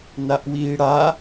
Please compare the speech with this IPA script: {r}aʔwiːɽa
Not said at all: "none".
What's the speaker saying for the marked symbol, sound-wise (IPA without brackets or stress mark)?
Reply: n